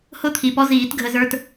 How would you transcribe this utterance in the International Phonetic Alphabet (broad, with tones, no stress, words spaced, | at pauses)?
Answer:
hʊ˥t̪ʰi˨˩pɔ˧˥ziː˨˩˦t ɡʱə˧zə˞˧t